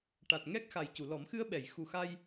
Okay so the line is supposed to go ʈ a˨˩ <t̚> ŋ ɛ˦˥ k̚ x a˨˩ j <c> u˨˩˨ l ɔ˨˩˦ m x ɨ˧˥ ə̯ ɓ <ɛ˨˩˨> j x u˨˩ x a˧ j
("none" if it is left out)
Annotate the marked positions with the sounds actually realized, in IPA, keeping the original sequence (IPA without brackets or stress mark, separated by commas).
t̚, c, ɛ˨˩˨